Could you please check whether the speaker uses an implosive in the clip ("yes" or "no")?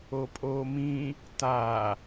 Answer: no